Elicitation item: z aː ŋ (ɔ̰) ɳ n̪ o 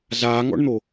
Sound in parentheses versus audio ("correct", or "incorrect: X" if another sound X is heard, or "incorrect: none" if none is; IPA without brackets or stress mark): correct